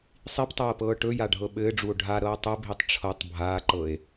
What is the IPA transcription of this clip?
sˤ i p tˤ ɤː p ɤː ʈ ɵ j a ɖʱ ɤ ɓ ɘː ɖ͡ʐ u o̯ ɖʱ a ɾ ɤː tˤ ɘ bʱ i tˤ ʈ͡ʂʰ ɤ tˤ bʱ aː ǃ ɤ e̯

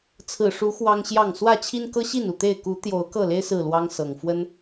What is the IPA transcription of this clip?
t͡sʰ ɹ̩˨˩ ʂ u˨˦ x w ɑ˦ ŋ ɕ j ɑ˥˨ ŋ s w ä˥˨ t͡ɕʰ i˦ n k ɤ˦ ɕ i˥˨ n u˥˨ t̪ e˥˨ ɪ̯ k u˨˦ t̪ j o˨˦ ʊ̯ k ɤ˥˨ l e˦ ɪ̯ s ɹ̩˥˨ l w ɑ˦ ŋ s ɤ˨˩ ŋ f w ə˦ n

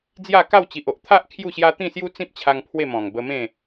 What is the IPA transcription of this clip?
d͡z j a˥˧ k a˥˧ w t͡ɕ i˨ ʔ o˨ ʔ t̪ʰ a˦ ʔ kʰ j u˥˧ ɕ j a˦ t̪ ĩ˥˧ s j u˦ t͡s ĩ˦ p̚ t͡ɕʰ a˧ ŋ pʰ w e˥˧ m ɔ̃˨˩ ŋ b ə˧ m ẽ˥˧

